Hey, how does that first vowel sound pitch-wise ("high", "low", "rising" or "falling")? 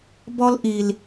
high